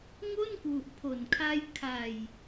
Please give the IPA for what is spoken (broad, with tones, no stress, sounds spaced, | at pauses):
ŋ o˥˩ n k w u˨˩ ʔ pʰ o˨˩ n kʰ a˦˥ j kʰ a˨˩ j